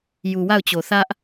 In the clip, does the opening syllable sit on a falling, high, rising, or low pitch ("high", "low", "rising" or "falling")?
low